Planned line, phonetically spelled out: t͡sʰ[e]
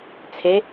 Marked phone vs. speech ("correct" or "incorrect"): correct